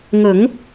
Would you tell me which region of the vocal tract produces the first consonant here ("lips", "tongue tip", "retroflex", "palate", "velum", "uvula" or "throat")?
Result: velum